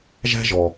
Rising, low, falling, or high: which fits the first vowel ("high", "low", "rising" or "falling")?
high